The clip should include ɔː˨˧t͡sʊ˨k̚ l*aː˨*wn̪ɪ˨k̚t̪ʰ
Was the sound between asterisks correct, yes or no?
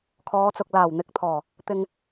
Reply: no